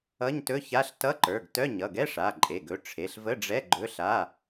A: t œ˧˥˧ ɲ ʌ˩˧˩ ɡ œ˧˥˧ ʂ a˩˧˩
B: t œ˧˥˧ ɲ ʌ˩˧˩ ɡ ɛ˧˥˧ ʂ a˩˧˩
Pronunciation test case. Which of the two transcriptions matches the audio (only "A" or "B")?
B